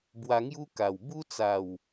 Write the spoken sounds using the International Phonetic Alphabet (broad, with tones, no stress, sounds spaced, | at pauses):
b w a˧ ŋ j u˦ k a˨˩ w b u˦ t͡s a˨˩ w